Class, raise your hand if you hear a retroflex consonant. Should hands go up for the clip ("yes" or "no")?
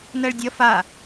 yes